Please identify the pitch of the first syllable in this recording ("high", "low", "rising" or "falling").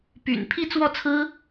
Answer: low